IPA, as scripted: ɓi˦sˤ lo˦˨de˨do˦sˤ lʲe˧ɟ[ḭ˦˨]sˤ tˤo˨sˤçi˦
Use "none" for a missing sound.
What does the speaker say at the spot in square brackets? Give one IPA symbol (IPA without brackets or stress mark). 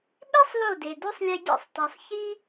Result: ḭ˦˨